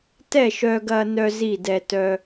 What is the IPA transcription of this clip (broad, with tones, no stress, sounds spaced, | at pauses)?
t ɛ˥˩ ʃ œ˧ ɡ ɐ˧ n œ˧ z i˥˩ d ɛ˧ t œ˧